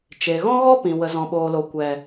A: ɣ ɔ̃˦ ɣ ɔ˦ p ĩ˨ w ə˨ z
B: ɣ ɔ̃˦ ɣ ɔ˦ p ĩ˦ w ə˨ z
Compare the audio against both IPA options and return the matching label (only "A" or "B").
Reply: A